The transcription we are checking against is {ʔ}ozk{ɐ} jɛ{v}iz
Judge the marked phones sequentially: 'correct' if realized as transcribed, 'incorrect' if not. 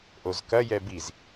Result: correct, correct, incorrect: b

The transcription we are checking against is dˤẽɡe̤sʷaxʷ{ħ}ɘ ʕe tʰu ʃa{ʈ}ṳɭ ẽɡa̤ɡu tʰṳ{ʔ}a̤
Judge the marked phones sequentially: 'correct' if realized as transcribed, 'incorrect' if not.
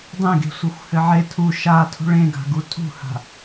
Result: incorrect: h, incorrect: tʰ, incorrect: h

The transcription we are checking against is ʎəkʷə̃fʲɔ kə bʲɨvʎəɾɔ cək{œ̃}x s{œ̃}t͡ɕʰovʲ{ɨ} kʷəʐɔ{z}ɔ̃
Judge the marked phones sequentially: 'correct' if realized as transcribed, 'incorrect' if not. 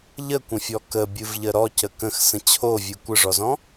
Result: incorrect: ə̃, incorrect: ə̃, correct, correct

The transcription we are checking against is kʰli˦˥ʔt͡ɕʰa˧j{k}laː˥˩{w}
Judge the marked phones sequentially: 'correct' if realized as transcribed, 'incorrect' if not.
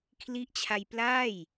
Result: incorrect: p, incorrect: j

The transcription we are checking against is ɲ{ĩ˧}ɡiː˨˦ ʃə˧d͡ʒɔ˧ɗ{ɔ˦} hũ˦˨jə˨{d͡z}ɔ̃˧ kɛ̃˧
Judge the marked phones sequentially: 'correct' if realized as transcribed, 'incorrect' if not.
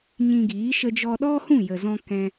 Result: correct, correct, incorrect: z

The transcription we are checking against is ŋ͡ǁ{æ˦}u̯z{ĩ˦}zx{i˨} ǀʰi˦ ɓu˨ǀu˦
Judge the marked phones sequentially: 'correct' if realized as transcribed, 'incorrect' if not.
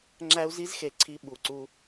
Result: correct, incorrect: i˦, incorrect: e˨

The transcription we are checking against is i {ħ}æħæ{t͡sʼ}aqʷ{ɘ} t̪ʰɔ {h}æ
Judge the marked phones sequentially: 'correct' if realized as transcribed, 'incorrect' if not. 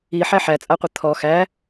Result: correct, correct, correct, incorrect: x

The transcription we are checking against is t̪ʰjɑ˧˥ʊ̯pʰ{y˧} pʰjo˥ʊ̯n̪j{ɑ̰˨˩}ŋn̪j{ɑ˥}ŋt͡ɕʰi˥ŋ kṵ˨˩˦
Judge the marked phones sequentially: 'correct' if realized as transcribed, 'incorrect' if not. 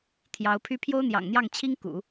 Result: incorrect: y˥, correct, incorrect: ɑ˥˩

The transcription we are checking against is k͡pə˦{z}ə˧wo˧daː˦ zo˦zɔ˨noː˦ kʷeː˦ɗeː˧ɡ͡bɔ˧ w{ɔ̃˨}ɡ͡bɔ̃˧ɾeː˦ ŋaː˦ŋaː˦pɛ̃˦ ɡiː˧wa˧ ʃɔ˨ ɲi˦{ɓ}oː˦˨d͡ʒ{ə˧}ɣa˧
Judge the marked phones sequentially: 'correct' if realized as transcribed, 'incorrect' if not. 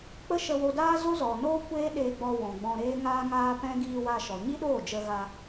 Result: incorrect: ʃ, correct, incorrect: ɗ, correct

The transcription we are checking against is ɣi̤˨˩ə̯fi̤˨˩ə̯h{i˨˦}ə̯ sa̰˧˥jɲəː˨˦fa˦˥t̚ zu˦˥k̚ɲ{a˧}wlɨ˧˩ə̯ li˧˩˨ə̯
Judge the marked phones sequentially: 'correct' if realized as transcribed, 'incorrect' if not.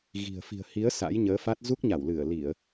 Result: correct, incorrect: a˧˩

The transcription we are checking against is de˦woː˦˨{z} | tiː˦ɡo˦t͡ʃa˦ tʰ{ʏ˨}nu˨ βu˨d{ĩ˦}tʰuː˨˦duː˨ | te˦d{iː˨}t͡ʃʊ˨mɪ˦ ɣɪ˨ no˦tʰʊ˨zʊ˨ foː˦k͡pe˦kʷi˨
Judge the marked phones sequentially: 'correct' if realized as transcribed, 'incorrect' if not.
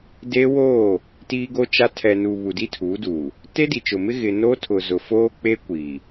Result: incorrect: none, incorrect: ɛ˨, incorrect: i˦, incorrect: i˨

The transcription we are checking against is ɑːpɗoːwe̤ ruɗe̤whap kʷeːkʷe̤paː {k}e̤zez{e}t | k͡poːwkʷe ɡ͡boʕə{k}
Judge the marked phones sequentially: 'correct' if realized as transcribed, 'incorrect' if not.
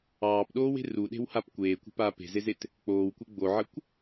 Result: incorrect: p, correct, incorrect: kʷ

